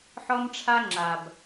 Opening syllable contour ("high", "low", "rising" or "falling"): high